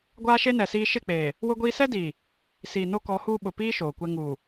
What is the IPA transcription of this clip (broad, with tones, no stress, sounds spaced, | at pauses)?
ɡʷ aː˦ ʃ e˦ n ɛ˨ s iː˦ ʃ ɪ˦˨ k͡p eː˨ | w ʊ˦ ɡʷ iː˦ s ɛ˦ d iː˨ | s iː˨ n o˦ k ɔ˨˦ h uː˦ ɓ ʊ˨ p iː˦ ʃ oː˨ kʷ ɛ˦ ŋ uː˨